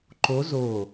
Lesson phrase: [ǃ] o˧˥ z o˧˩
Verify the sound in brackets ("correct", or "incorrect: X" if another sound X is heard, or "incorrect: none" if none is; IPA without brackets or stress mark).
correct